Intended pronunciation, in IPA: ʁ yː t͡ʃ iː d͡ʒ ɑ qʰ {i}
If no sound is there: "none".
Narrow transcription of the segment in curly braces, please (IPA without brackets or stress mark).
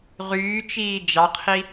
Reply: i